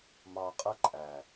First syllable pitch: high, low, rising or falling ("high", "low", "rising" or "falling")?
low